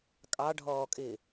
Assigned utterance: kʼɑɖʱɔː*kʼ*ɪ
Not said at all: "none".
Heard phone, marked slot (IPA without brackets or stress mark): kʼ